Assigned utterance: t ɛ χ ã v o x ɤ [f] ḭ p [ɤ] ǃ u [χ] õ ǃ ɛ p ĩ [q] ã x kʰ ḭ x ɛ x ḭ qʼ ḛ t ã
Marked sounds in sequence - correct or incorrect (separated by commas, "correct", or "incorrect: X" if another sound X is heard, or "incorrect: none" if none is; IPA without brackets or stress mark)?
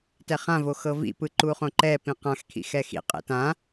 incorrect: v, incorrect: ɯ, correct, correct